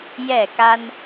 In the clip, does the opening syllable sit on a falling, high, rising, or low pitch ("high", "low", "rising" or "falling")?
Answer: falling